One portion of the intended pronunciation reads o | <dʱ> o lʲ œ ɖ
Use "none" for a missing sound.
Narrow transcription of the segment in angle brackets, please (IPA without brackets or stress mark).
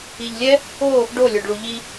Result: ɖ